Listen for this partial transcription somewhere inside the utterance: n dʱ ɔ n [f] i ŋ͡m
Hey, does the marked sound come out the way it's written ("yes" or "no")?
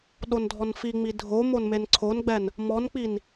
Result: yes